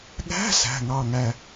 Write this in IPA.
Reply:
ɠ æ̤˧˥˧ s æ̤˩˧˩ ŋ ɑ˧˩ ŋ æ˧˩

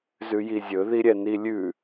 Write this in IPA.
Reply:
z ʉ j i zʲ ɵ ð i ɾʲ ɛ n i lʲ ʉ

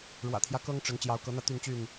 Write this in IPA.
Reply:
ɻ w ä̰˨˩ t̪ʰ j ä˦ k ɤ˦ ŋ ʈ͡ʂ ə˨˦ n t͡ɕ j ɑ˨˦ ʊ̯ k ɤ˨˦ n̪ ä˧ t̪ y˥˨ n t͡ɕ y˥˨ n

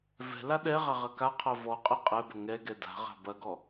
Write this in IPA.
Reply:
v ɛ̤ l a ɗ ɛ ʁ a ʁ ɐ k a qʰ ɐ v ɔ qʼ ɛ qʼ ɛ b ɐ ŋ ɛ ɡ ɛ d a̤ ʁ a̤ b ɐ ɡ ɔ

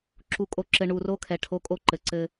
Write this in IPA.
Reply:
ǁ u˨ kʼ o˨ ǁ ɘ˨ ɳ u˨ r o˦ kʰ ɛ˨ ʈʰ o˦ kʼ o˦ ǃ ɘ˨ ǀ ɘ˦

